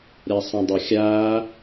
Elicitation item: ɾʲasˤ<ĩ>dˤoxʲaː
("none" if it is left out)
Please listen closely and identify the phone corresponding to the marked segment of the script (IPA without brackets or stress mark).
ĩ